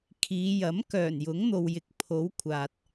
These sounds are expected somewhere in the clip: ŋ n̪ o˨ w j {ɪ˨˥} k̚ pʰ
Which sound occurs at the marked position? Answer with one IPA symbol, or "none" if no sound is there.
ɪ˨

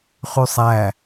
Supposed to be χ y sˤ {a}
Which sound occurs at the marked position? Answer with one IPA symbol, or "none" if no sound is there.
æ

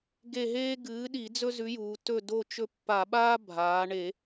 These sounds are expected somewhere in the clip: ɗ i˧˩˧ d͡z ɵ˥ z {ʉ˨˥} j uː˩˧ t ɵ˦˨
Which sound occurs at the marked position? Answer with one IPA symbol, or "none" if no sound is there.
ʉ˨˥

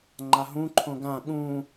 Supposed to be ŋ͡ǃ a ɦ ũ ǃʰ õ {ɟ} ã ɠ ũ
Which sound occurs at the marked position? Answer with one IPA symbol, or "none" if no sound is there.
ɡ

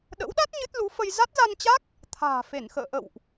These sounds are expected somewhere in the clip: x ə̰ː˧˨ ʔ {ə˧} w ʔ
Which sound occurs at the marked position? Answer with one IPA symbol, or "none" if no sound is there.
ə̰˧˨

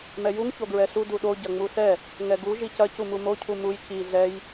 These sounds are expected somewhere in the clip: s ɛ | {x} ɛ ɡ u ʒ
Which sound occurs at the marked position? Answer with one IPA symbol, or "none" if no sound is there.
ŋ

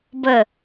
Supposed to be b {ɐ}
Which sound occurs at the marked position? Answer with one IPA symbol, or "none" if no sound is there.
ə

